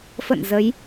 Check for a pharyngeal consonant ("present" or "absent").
absent